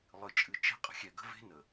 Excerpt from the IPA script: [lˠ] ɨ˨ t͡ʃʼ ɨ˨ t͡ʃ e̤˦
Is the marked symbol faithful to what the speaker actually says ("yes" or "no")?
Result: yes